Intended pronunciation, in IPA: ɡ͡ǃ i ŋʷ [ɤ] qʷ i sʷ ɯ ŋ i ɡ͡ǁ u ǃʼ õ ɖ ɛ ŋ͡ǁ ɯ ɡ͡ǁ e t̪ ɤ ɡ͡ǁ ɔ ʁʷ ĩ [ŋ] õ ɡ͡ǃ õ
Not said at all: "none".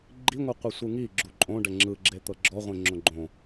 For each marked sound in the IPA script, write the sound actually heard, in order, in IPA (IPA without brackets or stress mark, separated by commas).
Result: ɯ, ŋ͡ǁ